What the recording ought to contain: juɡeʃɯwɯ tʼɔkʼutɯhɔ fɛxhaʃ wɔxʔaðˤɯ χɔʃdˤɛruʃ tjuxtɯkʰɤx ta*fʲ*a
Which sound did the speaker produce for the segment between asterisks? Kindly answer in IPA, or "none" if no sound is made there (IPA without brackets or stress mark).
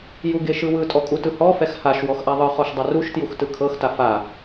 f